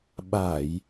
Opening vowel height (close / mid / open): open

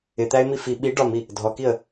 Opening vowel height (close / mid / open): close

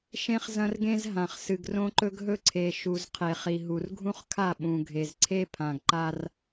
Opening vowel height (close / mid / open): mid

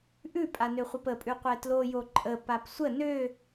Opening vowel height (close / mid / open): close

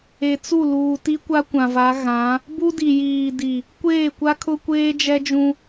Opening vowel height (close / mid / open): mid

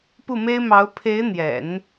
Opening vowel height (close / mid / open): close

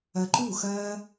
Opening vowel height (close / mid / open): open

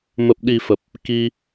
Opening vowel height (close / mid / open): mid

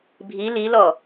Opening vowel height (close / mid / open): close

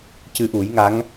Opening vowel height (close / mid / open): close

